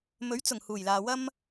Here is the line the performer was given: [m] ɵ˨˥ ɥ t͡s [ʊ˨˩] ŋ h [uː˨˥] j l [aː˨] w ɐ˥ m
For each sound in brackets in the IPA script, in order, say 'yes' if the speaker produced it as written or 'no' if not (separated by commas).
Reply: yes, yes, no, yes